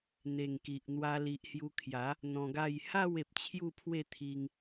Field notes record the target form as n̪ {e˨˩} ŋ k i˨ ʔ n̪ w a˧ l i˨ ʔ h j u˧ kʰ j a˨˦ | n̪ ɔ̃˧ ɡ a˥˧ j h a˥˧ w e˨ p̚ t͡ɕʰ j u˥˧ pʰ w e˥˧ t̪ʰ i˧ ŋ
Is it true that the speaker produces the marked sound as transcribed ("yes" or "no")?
yes